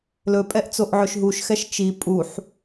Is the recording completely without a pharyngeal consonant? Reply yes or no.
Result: no